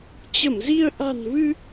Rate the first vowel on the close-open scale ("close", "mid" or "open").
mid